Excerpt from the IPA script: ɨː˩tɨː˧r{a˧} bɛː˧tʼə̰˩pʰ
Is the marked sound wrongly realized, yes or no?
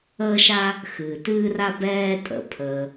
no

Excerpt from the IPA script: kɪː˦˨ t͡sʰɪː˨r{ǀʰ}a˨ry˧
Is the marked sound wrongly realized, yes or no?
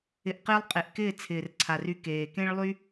no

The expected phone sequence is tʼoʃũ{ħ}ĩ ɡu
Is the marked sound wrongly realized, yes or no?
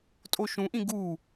yes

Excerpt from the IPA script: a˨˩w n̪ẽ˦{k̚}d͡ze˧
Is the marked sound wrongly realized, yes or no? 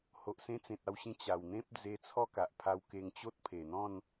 yes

